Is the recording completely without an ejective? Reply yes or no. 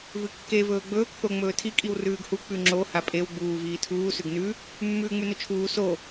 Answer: no